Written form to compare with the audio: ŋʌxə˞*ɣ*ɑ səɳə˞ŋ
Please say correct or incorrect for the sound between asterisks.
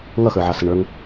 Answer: incorrect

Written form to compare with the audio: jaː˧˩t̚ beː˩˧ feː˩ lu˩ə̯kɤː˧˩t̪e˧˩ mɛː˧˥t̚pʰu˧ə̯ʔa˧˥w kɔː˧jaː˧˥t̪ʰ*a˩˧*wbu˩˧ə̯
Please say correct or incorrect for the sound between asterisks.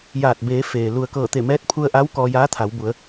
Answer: correct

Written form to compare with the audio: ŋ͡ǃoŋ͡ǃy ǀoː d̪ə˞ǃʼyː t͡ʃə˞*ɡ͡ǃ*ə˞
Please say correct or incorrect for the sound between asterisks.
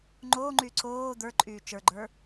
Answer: correct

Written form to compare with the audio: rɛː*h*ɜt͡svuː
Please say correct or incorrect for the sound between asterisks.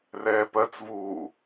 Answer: incorrect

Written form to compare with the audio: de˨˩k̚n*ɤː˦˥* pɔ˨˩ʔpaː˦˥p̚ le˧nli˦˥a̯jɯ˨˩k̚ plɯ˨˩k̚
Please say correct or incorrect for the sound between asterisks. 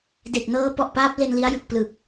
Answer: correct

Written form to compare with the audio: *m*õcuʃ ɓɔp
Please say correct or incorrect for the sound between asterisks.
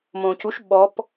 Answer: correct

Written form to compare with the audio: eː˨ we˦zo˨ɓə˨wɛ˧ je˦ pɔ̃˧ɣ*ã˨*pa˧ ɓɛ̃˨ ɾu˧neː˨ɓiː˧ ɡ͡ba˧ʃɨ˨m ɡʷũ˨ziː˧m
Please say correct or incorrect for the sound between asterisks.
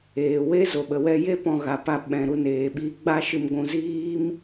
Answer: incorrect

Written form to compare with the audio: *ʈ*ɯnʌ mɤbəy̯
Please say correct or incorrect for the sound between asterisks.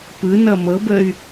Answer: incorrect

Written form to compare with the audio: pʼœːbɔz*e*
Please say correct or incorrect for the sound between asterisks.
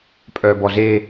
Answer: correct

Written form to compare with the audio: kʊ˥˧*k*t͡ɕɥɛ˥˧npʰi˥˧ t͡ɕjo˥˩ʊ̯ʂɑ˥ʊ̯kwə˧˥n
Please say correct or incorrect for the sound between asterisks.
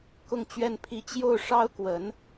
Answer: incorrect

